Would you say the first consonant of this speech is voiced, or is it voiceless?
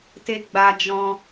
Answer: voiceless